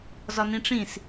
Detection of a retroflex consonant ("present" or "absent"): present